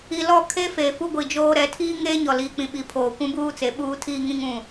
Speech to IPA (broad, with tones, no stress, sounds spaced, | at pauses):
i˨ l ɔ˦˨ kʰ e˦ f eː˨ f u˦ ɡʷ i˨ d͡ʒ oː˦ ɾ ɛ˨˦ tʰ iː˦ ŋ eː˦ ɲ ɔ˨ l iː˨ k͡p ĩ˨ ɓ i˨ pʰ oː˨ kʷ ũ˦ b uː˦ t͡s e˨˦ ɓ uː˦ tʰ iː˦ ŋ ĩ˦ ŋ ũ˦˨